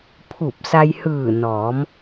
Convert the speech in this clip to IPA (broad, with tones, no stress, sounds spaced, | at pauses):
pʰ u˧˩ p̚ s a˧ j h ɯː˧˩ n ɔː˩˧ m